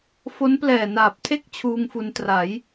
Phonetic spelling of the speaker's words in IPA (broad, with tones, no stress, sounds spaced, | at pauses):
f o˦˥ n p l ɛː˨˩ n aː˨˩ p̚ tʰ e˥˩ k̚ t͡ɕʰ uː˧ ŋ f u˧ n t r a˩˦ j